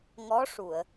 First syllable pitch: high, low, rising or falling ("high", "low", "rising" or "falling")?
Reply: rising